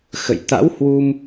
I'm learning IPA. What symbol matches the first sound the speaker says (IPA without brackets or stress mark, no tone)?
x